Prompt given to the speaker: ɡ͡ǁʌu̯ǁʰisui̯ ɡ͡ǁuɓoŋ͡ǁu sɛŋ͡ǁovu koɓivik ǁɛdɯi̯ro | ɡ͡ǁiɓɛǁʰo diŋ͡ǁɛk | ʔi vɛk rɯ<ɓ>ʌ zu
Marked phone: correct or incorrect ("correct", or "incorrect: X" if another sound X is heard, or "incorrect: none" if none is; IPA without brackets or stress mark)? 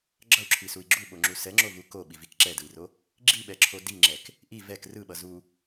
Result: correct